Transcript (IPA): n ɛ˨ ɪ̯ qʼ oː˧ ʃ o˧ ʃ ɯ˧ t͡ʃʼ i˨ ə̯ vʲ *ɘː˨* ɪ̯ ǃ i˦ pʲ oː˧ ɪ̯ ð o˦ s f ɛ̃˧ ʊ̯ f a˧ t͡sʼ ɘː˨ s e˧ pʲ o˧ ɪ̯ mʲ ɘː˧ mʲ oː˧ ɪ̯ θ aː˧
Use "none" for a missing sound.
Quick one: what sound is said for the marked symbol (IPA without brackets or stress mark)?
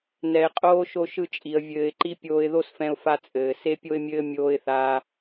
ɘː˨